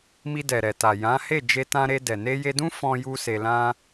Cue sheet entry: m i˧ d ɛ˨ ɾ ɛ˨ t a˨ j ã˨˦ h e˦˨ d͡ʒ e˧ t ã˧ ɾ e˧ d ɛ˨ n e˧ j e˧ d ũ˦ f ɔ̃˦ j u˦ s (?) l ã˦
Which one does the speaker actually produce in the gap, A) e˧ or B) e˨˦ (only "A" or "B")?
A